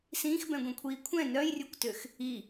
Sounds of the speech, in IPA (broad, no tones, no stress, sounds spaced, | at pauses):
s ĩː x b ɛ̃ ɡʷ ĩ kʷʰ iː kʷʰ ɛ̃ n œ j rʲ u kʷ t ʏ x | i